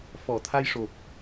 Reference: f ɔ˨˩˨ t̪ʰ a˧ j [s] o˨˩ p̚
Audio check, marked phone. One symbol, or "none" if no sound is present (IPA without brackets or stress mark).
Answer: ʂ